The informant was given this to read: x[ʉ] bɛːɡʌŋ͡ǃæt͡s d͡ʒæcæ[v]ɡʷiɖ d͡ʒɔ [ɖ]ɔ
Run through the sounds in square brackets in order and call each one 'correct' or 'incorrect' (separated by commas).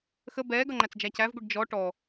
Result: incorrect, correct, incorrect